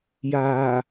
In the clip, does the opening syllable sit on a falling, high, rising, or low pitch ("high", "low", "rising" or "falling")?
low